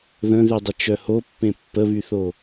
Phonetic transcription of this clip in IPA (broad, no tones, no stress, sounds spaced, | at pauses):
ð ə̃ ð y dˤ ə t͡ʃ œ h o pː ẽ pː ə β y θ o